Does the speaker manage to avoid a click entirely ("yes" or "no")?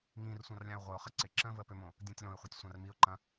no